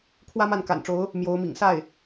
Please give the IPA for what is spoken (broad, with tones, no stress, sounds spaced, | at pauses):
kʰ w ä˥ m a˥˩ n k a̰˨˩ n ʈ͡ʂ o˧˥ ʊ̯ | m j o˧˥ ʊ̯ m ḭ˨˩ ŋ s a˥˩ ɪ̯